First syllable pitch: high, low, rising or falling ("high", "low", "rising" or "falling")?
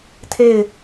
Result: falling